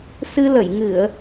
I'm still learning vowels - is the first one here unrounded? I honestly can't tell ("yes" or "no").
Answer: yes